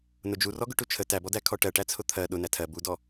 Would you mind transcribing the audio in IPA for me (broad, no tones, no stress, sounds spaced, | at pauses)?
n ʊ d͡ʒ u r ɔ ɡ ʊ ʈ u t͡ʃʰ ə t æ b ɔ d æ kʰ ɔ ʈ ɜ ʈ æ t͡sʰ ʊ t̪ʰ ɜ ɗ ʊ n æ tʰ ɜ b u d ɔ